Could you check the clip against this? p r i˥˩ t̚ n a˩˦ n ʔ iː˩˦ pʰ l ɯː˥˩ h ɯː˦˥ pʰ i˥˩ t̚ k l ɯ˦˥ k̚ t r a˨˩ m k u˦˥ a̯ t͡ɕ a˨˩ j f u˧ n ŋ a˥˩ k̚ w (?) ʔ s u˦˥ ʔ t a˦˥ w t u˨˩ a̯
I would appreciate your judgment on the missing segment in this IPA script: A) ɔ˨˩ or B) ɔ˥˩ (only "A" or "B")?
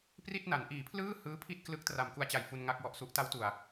A